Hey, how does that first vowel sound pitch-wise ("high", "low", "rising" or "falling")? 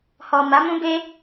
low